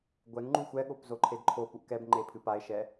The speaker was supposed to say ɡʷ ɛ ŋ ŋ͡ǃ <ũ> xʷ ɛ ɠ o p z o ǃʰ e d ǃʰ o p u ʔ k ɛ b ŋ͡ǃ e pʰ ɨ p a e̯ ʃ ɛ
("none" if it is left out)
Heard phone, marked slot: u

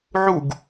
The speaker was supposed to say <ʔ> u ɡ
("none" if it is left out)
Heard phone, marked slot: ʕ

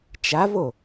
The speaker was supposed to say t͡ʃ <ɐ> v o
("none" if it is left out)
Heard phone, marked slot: a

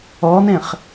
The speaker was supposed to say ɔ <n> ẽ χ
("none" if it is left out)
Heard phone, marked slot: n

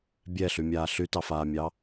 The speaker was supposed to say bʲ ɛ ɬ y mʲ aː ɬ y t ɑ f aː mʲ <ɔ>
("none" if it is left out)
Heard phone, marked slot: ɑ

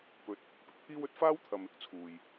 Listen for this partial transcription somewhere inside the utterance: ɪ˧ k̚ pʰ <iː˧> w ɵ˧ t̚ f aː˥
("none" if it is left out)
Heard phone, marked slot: iː˥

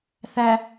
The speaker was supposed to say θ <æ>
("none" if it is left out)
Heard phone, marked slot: æ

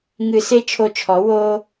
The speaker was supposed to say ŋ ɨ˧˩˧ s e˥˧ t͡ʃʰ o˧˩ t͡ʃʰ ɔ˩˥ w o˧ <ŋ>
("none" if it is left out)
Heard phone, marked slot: none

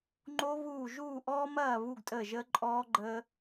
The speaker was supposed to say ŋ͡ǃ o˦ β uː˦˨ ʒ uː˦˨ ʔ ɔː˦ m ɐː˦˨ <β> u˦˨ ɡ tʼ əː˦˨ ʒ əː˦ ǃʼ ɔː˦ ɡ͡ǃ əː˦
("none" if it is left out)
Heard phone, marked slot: β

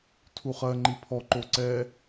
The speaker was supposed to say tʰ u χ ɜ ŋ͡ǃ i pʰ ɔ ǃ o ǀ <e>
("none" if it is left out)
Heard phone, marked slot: ɛ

